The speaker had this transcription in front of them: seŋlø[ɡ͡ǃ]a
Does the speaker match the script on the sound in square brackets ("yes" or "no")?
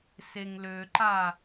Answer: no